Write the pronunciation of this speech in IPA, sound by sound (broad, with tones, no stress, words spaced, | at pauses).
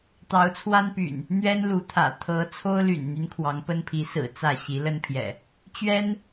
t̪ɑ˨˦ʊ̯t͡sʰwa˦npy̰˨˩n | n̪ɥɛ˦nlu˨˦t̪ʰä̰˨˩ t̪ʰɤ˨˦ t͡sʰo˦ʊ̯ly̰˨˩nn̪y˦n kʰwɑ˨˦ŋpə˦npʰi˨˦sɹ̩˨˩ t͡sä˥˨ ɕi˨˦ lə˦npʰjɛ̰˨˩ | t͡ɕɥɛ˦n